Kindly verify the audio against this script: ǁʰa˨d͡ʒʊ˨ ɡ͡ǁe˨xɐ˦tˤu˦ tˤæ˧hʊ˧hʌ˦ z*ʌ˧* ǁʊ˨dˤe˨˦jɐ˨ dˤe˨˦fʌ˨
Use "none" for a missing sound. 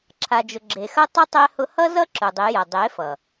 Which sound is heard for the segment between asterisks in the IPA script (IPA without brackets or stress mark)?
ʌ˦